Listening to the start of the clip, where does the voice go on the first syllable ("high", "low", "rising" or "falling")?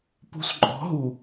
low